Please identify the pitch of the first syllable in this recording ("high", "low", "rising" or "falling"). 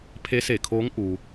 rising